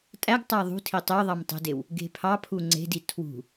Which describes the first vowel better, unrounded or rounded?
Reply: unrounded